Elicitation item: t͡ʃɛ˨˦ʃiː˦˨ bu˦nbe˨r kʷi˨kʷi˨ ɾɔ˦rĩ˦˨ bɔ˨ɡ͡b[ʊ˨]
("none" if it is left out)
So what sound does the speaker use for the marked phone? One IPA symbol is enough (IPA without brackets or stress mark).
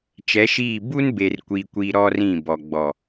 ɔ˨